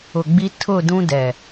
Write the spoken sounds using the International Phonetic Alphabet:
ʊ˨ɡ͡bi˦ tʰʊ˦˨ dũ˦dɛ˨

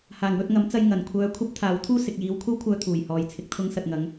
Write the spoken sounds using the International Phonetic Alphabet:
haː˨˩ŋwɵ˧t̚ŋɐ˨˥mt͡sɐ˧j ŋɐ˨˩nkʷʰœː˧ kʷʰɐ˥p̚t̪ʰaː˨˥wt̪ʰuː˥ sɪ˨k̚jiː˨˧wkʷʰɐ˥wkʷʰœː˧ t̪ʰuː˨˩jhɔː˨j t͡sʰɪ˨k̚t̪ʰʊ˧ŋsɐ˨t̚ŋɐ˨˧ŋ

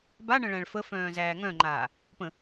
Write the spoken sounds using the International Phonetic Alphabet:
baɳə̃ ɭæ̃ɭfəfœ̃ː zæːŋœ̃ŋ͡ǃaː | pə̃

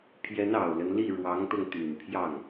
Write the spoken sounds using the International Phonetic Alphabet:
pʰjɛ˧˥nɑ˨˩ʊ̯lə˦nli˥˩ ɻwɑ˧˥ŋt̪ɤ˧ŋt̪y˨˩npʰjɑ˥˩ŋ

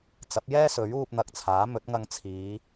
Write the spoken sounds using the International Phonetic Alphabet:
t͡sɐ˨˥p̚jɛː˥ sɵ˨˥ɥ uː˧p̚n̪ɐ˨k̚t͡sʰaː˨˥mɵ˨˥t̚ ŋɐ˧ŋt͡sʰiː˨˧

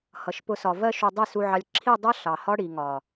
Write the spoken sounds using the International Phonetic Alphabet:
hʌ˨ʃpʊ˧sɒ˨ vɜ˧ʃu˨ dˤi˦˨su˧ʕɑ˧lʲ ǁʰi˦˨ dˤʌ˦ ɬɑ˨hɒ˦ ɽi˨ŋɒ˨

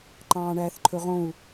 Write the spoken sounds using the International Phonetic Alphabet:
ǃɑ̃ːɳæːθǃʰɵʁõu̯

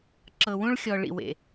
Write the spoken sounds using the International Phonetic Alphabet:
ǁɤ˨wũ˦ɭxʲɔ˨ ɭḭ˨wḛ˨

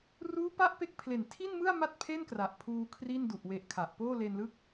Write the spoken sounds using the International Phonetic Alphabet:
ruː˦˥pa˦˥ʔ pe˦˥k̚ pʰle˨˩ntʰi˥˩nmɯ˥˩a̯ ma˥˩t̚pʰe˥˩nkra˨˩ʔ pʰuː˧ kʰri˥˩ndu˨˩ʔ we˨˩ʔ kʰa˨˩ʔpoː˥˩ le˧nlɯ˦˥k̚

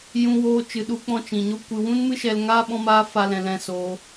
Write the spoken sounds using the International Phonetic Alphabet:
jũ˦woː˦ t͡ʃɨ˧ɗu˦k͡pɔ̃˦ t͡ʃĩ˨ɲo˦ kʷɨ˧ wũ˦nmɨ˦ ʃɛ˧l ŋaː˦ ɓɔ̃˦maː˦fa˧lɛ̃˨ lɛ̃˧soː˧

